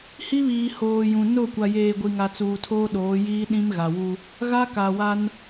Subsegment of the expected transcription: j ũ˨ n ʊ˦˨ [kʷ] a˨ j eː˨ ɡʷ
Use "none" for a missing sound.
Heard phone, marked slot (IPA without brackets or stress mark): kʷ